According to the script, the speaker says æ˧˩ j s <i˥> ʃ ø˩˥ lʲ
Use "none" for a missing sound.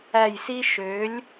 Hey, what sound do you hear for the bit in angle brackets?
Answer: i˥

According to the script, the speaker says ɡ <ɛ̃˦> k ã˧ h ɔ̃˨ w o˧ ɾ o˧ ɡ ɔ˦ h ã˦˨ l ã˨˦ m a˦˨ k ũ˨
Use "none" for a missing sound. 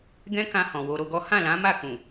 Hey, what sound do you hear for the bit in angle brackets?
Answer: ɛ̃˦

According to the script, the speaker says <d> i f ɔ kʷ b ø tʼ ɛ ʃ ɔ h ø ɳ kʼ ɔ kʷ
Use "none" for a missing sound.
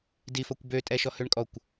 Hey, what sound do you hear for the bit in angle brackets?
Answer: d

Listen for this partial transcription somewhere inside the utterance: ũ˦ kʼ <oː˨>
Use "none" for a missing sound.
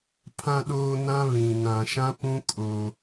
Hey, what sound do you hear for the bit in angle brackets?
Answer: oː˦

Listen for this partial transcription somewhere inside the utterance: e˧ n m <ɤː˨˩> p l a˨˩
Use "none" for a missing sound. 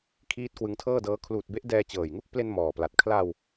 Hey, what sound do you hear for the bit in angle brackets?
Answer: ɔː˨˩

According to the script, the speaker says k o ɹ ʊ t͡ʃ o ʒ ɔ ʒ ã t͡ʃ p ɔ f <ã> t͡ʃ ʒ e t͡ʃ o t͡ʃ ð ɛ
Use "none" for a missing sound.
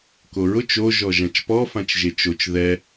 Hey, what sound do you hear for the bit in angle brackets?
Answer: ã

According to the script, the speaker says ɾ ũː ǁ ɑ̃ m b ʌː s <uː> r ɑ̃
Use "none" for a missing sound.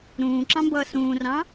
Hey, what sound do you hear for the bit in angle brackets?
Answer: ũː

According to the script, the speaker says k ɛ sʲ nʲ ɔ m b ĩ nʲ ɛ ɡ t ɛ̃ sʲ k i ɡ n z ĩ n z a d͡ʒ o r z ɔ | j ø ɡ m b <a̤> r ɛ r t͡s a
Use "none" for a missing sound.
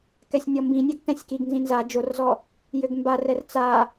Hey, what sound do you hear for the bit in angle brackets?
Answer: a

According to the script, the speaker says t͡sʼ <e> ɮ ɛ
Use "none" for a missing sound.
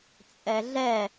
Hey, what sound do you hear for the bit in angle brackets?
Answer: ɛ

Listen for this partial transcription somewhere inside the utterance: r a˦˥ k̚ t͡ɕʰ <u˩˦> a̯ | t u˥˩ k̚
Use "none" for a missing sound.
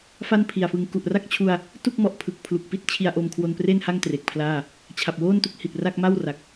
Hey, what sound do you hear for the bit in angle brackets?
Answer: u˧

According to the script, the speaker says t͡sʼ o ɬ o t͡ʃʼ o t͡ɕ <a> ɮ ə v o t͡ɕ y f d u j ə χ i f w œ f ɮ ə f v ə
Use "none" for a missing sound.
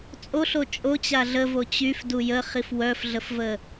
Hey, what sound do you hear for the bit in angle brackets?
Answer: a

